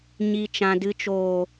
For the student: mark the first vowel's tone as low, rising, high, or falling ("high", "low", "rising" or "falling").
low